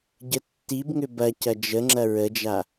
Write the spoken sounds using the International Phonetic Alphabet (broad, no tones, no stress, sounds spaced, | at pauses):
ɟ ə tː i b ŋ ʏ b ɐ c ɐ d͡ʒ ə ŋ͡ǁ ɐ ɹ ə d͡ʒ a